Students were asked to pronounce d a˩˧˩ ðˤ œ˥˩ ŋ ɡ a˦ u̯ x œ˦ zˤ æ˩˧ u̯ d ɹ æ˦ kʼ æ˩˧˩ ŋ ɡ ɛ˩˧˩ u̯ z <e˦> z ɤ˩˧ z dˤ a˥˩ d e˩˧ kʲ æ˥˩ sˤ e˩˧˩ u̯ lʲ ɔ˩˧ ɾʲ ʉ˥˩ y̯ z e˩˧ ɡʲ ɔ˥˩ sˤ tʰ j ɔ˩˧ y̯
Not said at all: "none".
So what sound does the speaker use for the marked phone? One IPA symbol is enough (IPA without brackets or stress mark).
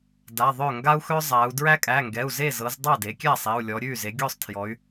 e˥˩